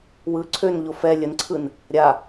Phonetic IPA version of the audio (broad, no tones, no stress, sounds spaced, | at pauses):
w ɯ ǀʰ ø n ʎ o f ɛ lʲ ə n ǀʰ ɯ n | ɾʲ a